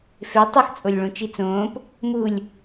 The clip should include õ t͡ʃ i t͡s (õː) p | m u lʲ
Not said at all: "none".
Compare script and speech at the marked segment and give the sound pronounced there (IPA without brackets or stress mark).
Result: õː